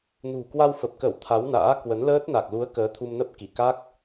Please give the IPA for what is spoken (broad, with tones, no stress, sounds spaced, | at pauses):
n ṳ˨˩ k w a˧ w f ə˨˩ p̚ k ə˧˩ w t̪ʰ a˨˦ w n a̰ː˧˥ k w ə˨˦ n l əː˦˥ t̚ n a˨˩ k̚ l u˨˦ ə̯ k əː˨˦ t̪ʰ u˧ m n ə˦˥ p̚ k i˧˩ k a˦˥ k̚